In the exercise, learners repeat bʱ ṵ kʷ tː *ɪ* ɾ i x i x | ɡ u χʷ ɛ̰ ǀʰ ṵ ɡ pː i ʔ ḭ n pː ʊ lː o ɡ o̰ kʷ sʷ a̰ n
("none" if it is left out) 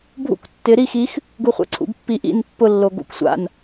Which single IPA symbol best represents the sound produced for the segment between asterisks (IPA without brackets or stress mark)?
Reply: ɪ